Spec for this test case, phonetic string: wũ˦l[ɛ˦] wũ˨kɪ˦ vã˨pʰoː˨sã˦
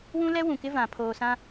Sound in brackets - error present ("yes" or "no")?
no